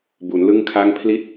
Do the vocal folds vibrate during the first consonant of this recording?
yes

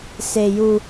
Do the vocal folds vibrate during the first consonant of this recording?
no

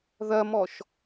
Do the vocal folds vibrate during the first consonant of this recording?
yes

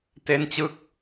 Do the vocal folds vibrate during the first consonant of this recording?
no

